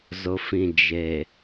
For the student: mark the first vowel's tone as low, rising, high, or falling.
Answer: low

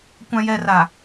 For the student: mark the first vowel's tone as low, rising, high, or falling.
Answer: low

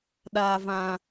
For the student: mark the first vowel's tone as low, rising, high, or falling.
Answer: low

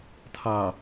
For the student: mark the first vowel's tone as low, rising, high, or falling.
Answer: low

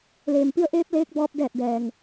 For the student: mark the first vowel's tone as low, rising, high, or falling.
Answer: low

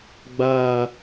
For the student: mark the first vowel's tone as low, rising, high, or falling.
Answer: low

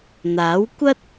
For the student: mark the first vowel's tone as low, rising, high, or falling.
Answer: rising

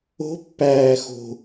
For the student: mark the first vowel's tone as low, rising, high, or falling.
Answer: rising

